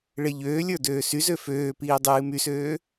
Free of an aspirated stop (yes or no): yes